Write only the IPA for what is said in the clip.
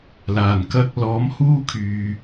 laː˨˩n kɐ˧k̚ lɔː˨˥mhuː˥kʰyː˨

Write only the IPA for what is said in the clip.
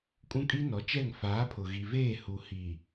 kʼũ˦kʼi˦nɔ˨˦t͡ʃɛ˦˨ŋ faː˨˦pʰʊ˨ ɣi˨veː˦˨hu˨hi˨

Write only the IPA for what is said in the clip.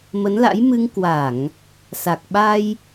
mə˨˦nla̰˧˥jmɨ˧ŋ kwa˧˩˨ŋ | sa˨˩k̚ɓa˧j

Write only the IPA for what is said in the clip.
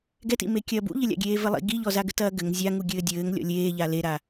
ɡɛtḭme kʲɐːbṵʎɘlʲa̰ ɡʲeːvɘlˠḭ ɡiʎɔzaɡɘ tɐːɡɘŋ zʲaŋu ɡʲɘːdʲɘːŋ lʲɔ̰lʲeːʎa leɾa

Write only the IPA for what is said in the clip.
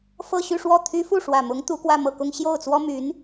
fɤ˥˧ɕy˥˧ʂwɔ˥˩t̪ʰy˥ fu˥˩ʂwä˨˩mʊ˧˥ŋ t̪u˧˥kwä˥˧mɤ˥˩kʊ˥ŋ ɕjo˥˩ʊ̯t͡swɔ˥my˧˥n

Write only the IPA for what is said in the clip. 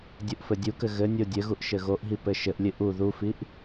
dʲuʔfɘdʲukɘ ɣɘnʲo dʲɘɣuʔ ʃɘɣoʔɦi pɘʃɘʔlʲɨ ʔu ðufiʔ

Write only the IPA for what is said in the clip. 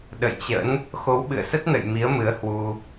ɗə̰˧˨jt͡ɕə̰˧˥n | xo˨˦wɓɨ̰˧˨ə̯sə˦˥t̚nə̰˧˨j mi˨˦ə̯mɨ˨˦ə̯hwu˧

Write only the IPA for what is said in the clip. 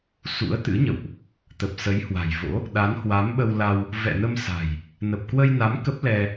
sṵ˧˥ə̯t̪ɨ̰˧˥ɲə̰˧˨wʔ | t̪ə˨˩p̚sə˨˦jhwa̤˨˩jvo̰˧˥ | ɗa˨˦nhwa˨˦mɓə˧wla˧w | vɛ̰˧˨nə˧msa̤˨˩j | nə˨˩p̚kwə˧jna˨˦m kə˦˥p̚lɛ˧

